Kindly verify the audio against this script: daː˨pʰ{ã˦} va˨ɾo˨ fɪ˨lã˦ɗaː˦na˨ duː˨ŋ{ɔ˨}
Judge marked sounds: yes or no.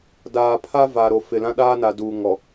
no, yes

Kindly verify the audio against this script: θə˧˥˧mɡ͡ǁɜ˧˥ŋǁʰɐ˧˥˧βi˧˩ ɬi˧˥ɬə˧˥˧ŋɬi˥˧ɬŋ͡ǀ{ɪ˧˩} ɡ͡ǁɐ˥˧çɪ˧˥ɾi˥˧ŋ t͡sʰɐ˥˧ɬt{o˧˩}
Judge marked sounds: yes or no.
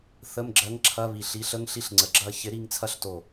no, yes

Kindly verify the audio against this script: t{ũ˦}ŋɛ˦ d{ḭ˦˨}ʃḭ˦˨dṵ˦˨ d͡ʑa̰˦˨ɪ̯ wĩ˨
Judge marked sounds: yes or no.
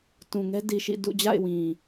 no, no

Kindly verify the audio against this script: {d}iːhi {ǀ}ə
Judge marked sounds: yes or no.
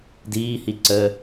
yes, yes

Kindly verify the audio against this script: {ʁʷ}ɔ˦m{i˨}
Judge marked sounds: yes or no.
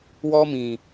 no, no

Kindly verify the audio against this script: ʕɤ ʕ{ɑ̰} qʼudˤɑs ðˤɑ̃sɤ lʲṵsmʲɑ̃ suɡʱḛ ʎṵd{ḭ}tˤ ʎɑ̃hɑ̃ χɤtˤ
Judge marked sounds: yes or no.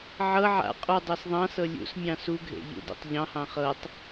no, no

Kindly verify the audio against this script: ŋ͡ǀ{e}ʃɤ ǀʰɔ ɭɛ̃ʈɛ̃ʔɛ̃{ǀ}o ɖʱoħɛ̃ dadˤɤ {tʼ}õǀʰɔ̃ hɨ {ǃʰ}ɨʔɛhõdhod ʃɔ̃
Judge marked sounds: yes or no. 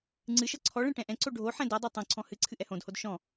no, yes, no, no

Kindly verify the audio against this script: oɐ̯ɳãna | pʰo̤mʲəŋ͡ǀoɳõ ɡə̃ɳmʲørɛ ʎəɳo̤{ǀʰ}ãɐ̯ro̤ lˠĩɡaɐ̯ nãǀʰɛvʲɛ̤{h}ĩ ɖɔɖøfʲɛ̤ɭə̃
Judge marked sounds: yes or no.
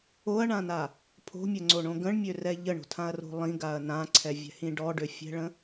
no, yes

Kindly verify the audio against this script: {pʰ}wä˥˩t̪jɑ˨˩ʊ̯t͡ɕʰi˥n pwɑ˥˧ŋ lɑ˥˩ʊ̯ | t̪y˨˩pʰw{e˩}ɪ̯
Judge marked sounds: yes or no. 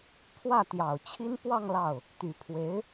yes, no

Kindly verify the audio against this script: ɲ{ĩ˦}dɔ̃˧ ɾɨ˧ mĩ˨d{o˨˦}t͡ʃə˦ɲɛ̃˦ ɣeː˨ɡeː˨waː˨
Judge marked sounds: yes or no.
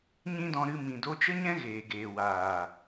yes, no

